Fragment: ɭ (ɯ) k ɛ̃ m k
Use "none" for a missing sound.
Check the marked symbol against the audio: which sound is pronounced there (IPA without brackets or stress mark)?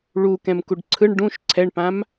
u